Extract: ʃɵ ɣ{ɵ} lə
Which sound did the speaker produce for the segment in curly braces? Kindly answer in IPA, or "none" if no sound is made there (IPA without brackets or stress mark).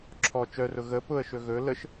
ɵ